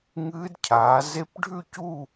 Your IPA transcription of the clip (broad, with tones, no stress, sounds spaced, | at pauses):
ŋ ɨː˦˥ d cʰ aː˨˦ z e˦˥ p ɖʱ ʉ˥˧ c u˥˧